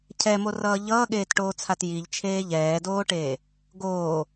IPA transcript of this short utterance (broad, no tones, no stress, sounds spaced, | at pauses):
cʰ ɛ m o r ʌː ʎ ʌː ɠ eː t ʈ oː t͡sʰ a t j i ʎ t͡ʃʰ eː ʎ ɛː d oː ʈ eː | ɡ oː